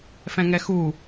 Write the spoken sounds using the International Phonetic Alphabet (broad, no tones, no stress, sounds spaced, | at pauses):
f ɛ̃ ŋ ɛ x u